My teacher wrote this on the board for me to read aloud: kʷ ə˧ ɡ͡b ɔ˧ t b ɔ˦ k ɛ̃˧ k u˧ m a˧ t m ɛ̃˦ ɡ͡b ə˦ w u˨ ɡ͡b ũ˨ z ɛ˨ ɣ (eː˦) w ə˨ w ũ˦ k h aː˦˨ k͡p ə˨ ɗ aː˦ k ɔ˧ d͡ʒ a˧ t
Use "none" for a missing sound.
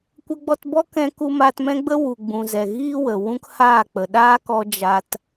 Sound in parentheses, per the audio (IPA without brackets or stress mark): iː˦